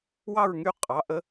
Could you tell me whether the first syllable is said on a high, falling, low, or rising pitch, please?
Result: falling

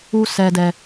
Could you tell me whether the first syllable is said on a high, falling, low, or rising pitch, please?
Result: low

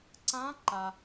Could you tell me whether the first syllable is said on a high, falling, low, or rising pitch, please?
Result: rising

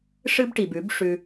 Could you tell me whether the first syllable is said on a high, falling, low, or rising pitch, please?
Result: high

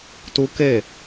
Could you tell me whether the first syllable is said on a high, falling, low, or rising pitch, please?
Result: high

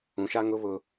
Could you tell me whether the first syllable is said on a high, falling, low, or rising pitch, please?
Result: low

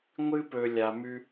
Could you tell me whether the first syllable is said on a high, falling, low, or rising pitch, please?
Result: high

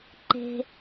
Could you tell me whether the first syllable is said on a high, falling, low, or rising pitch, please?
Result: low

